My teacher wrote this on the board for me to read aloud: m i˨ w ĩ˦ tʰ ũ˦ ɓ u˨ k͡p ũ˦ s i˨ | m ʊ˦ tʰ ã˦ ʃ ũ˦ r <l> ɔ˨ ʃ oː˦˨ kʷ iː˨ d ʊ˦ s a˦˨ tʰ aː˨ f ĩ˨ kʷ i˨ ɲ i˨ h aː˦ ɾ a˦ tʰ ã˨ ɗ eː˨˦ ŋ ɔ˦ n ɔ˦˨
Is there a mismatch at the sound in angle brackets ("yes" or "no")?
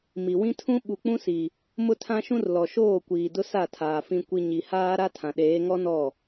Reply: no